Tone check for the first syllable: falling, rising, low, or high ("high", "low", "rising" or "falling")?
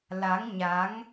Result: rising